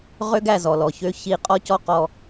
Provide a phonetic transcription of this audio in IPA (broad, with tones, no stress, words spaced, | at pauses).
ʁø˦ɡæ˦˨ zɔ˨lɔ˨çø˦ çi˦˨ qʼɔ˦cɔ˦ qɔ˦